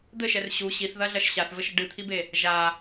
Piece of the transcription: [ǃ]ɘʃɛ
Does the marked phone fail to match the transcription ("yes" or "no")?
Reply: yes